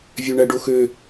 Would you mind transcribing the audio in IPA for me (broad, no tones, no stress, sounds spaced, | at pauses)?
vʲ ø ɳ æ ɖ o x ø